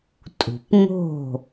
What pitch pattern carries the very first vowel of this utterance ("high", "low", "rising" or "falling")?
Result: low